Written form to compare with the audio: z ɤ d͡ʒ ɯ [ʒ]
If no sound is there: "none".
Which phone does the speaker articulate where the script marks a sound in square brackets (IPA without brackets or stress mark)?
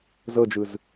z